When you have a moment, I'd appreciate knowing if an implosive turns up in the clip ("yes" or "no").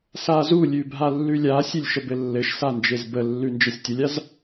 no